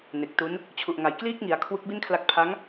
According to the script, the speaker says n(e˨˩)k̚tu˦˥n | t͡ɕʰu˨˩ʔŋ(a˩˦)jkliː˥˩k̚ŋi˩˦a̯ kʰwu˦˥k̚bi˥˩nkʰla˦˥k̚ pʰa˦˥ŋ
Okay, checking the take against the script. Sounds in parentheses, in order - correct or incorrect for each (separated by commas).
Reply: correct, correct